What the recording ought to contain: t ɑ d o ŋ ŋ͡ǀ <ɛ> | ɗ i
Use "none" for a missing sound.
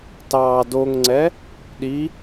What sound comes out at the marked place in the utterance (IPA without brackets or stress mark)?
ɛ